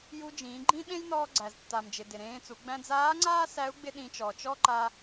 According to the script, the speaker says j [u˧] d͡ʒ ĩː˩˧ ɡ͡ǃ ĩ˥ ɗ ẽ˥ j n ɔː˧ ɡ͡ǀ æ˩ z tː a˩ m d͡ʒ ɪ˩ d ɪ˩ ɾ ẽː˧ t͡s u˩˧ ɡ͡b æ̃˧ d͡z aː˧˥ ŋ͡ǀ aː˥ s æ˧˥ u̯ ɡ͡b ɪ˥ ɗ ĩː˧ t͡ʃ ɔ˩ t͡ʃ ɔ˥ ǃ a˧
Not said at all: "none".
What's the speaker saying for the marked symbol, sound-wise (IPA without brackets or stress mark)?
u˧